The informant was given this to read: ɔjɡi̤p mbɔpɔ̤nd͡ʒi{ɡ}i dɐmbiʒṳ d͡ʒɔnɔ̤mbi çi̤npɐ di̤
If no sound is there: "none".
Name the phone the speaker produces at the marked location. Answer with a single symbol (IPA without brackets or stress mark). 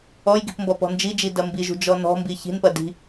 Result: d͡ʒ